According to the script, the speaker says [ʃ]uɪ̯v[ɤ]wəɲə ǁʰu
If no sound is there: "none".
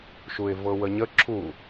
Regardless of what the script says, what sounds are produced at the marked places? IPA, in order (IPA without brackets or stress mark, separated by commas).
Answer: ʃ, ɤ